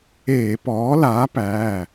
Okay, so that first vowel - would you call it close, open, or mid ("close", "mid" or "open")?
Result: mid